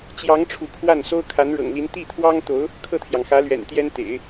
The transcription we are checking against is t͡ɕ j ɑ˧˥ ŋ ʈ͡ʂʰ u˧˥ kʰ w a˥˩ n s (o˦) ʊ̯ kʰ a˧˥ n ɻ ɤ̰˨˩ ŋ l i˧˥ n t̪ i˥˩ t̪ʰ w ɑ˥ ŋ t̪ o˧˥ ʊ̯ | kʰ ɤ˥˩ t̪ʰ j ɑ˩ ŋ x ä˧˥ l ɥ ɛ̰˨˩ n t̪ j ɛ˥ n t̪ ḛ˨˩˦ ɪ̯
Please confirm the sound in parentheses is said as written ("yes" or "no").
no